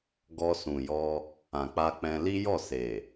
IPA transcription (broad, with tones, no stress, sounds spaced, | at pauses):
ɡ ɔ˧ s ũ˨ j ɔ˧ | ã˨ k͡p a˧ k͡p ɛ̃˧ l i˦ j ɔ˦˨ s e˨